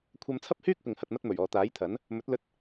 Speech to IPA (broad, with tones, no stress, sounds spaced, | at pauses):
kʷʰ ɐ˧ m t͡sʰ ɐ˥ p̚ h yː˥ k̚ p ɪ˨ ŋ h ɐ˨ t̚ m ɐ˧ t̚ m ɵ˨˩ ɥ ɔː˨ t̪ aː˨˥ j t̪ʰ ɐ˨˥ n | m ɵ˨˥ t̚ l ɵ˧ t̚